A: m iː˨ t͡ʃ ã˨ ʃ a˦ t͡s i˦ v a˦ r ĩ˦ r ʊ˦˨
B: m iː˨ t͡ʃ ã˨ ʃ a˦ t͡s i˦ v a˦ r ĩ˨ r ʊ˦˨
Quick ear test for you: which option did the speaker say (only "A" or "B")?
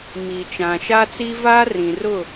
B